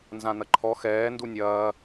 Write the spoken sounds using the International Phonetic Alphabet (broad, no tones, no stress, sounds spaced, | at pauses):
n z ã n̪ ɐ ǃʰ ɔ x ɛː n d u nʲ ɐː